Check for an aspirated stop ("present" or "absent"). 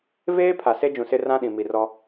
present